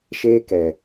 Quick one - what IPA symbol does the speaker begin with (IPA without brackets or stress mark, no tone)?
ʃ